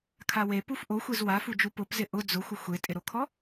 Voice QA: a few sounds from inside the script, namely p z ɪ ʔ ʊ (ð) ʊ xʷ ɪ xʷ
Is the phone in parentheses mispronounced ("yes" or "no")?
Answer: yes